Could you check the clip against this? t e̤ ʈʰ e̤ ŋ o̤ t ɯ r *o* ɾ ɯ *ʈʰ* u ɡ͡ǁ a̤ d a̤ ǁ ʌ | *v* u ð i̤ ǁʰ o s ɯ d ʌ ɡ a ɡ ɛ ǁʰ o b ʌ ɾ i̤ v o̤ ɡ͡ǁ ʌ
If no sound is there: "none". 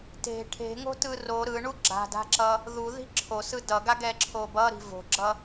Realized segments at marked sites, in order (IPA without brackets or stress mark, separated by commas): o, ɳ, ð